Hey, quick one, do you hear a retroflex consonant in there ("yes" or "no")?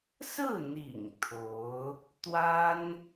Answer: no